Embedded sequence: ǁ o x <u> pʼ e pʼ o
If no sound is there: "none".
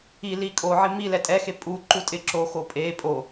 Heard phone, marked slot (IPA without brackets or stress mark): o